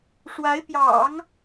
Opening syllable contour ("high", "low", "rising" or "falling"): rising